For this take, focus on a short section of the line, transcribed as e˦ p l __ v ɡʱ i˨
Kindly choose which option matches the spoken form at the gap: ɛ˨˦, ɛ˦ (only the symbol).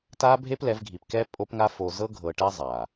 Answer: ɛ˨˦